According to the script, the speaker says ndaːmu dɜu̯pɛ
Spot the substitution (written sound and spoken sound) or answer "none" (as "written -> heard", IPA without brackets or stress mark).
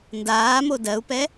u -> o